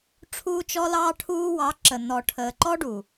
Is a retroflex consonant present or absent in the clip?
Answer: present